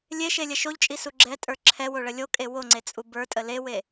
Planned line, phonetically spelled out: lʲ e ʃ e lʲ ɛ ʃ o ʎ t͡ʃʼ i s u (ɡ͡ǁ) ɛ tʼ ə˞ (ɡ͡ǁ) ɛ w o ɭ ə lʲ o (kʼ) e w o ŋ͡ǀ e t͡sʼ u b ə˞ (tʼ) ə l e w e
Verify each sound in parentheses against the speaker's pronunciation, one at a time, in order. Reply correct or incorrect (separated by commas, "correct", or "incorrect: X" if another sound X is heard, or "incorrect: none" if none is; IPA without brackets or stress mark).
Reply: correct, incorrect: ǁʰ, correct, correct